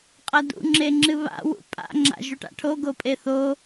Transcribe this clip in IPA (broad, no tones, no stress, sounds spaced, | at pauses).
qʼ ɐ d ṵ ŋ͡ǁ e ŋ͡ǁ ɨ β a̰ w ṵ pʼ a̰ ŋ͡ǁ a̰ ʒ u ʈ a̰ ʈʰ o ɡ o pʼ e θ o